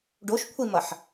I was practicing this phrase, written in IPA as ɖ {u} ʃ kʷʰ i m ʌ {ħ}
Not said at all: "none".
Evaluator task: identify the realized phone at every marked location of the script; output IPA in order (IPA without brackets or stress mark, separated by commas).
o, ħ